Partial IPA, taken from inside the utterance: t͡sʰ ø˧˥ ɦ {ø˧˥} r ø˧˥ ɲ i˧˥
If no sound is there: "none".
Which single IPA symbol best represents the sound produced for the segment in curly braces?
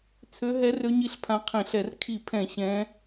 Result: ɛ˧˥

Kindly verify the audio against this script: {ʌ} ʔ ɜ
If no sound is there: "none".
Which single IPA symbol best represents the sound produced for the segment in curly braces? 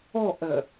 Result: ɔ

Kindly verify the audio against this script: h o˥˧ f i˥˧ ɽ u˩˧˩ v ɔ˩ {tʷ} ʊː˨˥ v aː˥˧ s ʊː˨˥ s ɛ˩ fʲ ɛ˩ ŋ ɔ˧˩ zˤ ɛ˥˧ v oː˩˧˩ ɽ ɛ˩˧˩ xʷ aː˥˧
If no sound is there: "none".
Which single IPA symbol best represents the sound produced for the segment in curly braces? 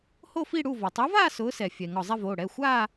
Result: tˤ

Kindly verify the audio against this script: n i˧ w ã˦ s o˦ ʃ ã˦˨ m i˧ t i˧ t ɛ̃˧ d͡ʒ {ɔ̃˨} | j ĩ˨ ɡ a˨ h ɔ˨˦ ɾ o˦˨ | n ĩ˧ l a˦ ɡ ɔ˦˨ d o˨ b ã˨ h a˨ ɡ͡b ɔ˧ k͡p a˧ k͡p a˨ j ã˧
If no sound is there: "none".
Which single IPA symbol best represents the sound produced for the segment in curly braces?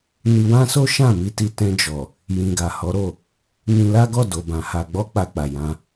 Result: ɔ˨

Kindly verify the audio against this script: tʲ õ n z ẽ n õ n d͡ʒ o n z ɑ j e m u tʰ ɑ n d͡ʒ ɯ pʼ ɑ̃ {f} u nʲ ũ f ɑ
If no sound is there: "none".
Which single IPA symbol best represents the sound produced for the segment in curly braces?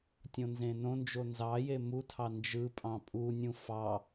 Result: pʼ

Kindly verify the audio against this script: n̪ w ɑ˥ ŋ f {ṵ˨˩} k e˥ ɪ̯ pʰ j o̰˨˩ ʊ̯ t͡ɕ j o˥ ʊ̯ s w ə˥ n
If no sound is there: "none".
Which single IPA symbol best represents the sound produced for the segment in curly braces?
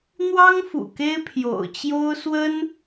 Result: ṵ˨˩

